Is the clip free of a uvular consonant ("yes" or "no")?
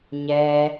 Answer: yes